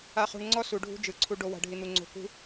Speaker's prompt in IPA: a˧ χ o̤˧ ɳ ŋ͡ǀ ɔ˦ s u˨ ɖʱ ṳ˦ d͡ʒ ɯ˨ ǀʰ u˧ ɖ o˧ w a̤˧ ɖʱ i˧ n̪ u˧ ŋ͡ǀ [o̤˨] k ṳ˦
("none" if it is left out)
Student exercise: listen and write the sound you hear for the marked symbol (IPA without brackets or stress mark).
o̤˧